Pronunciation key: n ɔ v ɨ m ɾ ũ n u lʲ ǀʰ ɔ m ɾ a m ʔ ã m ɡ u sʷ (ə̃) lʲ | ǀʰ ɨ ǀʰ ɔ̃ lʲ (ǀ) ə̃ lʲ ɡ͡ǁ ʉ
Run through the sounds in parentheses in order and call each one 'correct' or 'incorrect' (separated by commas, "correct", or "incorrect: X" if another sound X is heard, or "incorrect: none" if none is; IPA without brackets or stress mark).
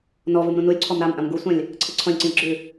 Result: incorrect: ã, correct